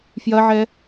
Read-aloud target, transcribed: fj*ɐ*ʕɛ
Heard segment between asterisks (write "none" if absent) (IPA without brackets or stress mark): ɐ